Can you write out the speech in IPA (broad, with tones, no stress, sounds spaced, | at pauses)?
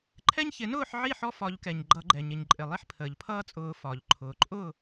ǃʰ ɛ˦ ɲ ç ɪ˨˩˦ n ʊː˥˨ ħ ʕ i˥˨ ħ ɔ˦ f ɒ˨˩˦ ʎ k ɛ˩ ɲ ɡ͡ǃ ʌ˨˩˦ ɡ͡ǃ ɛ˩ ɲ ɪ˩ ɲ ǃʼ ɪ˩ lˠ i˦ ħ pʰ əː˩ ʎ pʰ ʌː˦ t͡sʼ ʊː˨˩˦ f ɒ˩ ʎ ǃʰ ʊː˩ ǃʼ ʊ˥˨